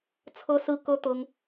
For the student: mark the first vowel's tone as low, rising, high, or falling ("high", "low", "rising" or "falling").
high